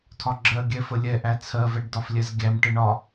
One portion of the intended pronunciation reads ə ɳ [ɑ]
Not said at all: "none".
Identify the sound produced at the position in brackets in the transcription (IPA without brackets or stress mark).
ɒ